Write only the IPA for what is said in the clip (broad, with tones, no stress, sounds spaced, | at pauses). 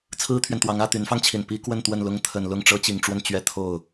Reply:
t͡sʰ ɹ̩˥ t̪ʰ ɥ ɛ˨ n t̪ w ɑ˧˥ ŋ ä˥˩ t̪ y˧˥ n f ɑ˧ ŋ t͡ɕʰ i˨˩ n p i˥ k w ə˥˧ n t̪ w ə˥˩ n l ʊ˥ ŋ t̪ʰ ə˨˩ n l ʊ˥˩ ŋ ʈ͡ʂ ɤ˥ t͡ɕ i˨˩ ŋ ʈ͡ʂ w ə˥˩ n t͡ɕ ɥ ɛ˥ t̪ʰ o˥˩ ʊ̯